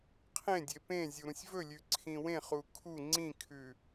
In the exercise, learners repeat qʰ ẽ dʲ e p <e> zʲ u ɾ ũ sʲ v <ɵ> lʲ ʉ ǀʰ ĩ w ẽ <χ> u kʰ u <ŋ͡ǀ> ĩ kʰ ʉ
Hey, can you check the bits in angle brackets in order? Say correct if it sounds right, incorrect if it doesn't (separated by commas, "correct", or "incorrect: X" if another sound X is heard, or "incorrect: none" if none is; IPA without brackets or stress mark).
incorrect: ẽ, correct, correct, correct